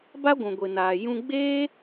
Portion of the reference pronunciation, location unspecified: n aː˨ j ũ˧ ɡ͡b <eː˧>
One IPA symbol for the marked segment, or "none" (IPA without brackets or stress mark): eː˦